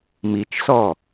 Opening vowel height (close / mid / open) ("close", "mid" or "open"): close